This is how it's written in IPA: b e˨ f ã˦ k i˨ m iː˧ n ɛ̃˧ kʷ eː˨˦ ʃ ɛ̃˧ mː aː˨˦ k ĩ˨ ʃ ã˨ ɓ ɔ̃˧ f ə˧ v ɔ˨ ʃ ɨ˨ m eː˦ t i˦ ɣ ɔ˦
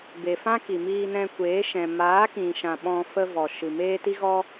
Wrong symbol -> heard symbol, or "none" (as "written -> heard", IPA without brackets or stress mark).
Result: mː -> m